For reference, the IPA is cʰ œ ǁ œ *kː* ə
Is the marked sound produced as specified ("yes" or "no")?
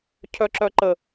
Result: no